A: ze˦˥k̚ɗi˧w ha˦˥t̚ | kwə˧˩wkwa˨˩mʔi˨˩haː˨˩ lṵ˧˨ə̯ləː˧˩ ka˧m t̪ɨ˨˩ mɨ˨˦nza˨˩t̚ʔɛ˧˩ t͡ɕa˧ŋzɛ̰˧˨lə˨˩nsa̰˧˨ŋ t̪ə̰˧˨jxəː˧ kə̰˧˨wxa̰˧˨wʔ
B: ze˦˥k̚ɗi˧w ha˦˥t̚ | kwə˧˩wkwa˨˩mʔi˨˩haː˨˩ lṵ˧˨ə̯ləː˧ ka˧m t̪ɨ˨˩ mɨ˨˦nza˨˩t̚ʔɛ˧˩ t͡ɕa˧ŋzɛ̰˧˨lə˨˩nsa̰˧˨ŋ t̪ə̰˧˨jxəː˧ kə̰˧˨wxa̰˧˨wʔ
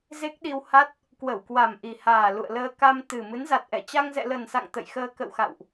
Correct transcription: B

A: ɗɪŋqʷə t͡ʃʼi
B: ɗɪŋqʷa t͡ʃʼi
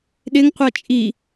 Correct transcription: B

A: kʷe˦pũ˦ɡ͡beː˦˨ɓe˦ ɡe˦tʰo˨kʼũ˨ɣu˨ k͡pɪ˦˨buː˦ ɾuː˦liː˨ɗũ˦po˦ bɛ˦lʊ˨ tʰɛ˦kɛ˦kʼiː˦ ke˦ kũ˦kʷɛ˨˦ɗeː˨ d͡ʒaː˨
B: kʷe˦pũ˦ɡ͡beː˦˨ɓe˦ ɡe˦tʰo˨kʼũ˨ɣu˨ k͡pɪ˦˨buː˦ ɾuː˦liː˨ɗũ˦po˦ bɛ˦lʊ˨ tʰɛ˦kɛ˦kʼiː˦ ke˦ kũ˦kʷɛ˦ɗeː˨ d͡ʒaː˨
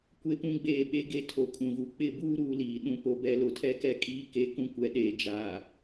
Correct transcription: A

